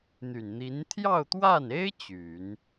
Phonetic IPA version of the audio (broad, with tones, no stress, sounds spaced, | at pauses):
n̪ y˨˩ n n̪ i˧˥ n t̪ʰ j ɑ˥˧ ʊ̯ t̪ w a˥˩ n e˥ ɪ̯ t͡ɕ y˨˩˦ n